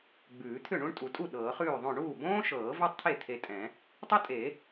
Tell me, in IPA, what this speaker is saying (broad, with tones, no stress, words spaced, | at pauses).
ɡ͡bʉː˨˩˦t̪ʰʏ˥˩ ɳũ˥ɳtʼu˨˩˦tʼu˥˩ ɗɤː˨˩˦χʉː˥˩ðˤõ˥˩ ɳuː˥˩bõː˥ʃɤː˨˩˦ ve˥tˤt̪ʰe˥˩ t̪ʰe˧tʼɛ̃˨˩˦ | tˤo˥tʼe˨˩˦